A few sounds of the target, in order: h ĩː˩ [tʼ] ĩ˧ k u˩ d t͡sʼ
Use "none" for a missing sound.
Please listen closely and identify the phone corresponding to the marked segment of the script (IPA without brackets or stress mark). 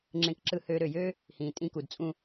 tʼ